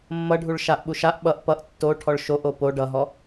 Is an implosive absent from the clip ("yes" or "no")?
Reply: no